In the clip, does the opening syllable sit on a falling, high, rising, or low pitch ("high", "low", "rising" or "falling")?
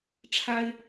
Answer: high